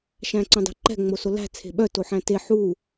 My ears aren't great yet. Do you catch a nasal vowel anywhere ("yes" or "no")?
yes